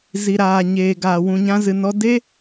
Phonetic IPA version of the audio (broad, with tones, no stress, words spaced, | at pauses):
zi˧ɾaː˧ ɲeː˧ɡaː˧ wũ˧ɲã˦zɨ˧nɔ˦ de˦